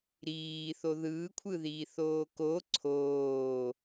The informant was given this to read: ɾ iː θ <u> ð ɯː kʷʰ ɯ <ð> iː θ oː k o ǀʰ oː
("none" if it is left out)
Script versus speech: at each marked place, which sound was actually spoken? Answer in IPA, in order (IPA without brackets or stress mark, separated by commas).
o, ð